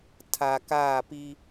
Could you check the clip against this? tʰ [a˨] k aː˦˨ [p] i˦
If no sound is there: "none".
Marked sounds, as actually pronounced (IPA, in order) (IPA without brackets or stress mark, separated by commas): a˨, p